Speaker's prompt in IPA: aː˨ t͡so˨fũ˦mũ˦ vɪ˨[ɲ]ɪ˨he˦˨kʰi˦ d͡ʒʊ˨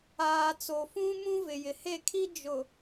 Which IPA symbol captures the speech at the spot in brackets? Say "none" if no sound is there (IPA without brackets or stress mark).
j